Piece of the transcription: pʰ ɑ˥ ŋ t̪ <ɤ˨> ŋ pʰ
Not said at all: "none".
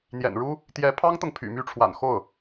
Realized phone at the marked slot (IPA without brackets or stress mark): ɤ˨